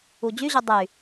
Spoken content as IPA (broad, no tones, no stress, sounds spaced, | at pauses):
u d͡ʑ y ʑ u dˤ y